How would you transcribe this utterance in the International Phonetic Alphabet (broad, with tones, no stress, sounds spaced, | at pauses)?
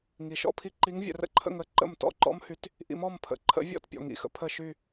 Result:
ŋ i˨ ʃ ɔ̰˥˧ pʰ i˥ ǃ i˧˥ ŋ vʲ ə̰˨ r ə̰˥ ǃʰ ə̰˥˧ ŋ ə˥˧ ǃ ə̰˥˩ m t ɔ̰˥˧ ǃ ɔ̰˥ m h y˧˥ t | ʔ ḭ˧˥ m ɔ˥˧ m pʰ ə̰˨ ǃʰ ə̰˧˥ vʲ ɔ̰˥˧ t pʲ ɔ̰˨ ŋ ḭ˥˩ x ə̰˥ pʰ ə˥˧ ʃ y˥˧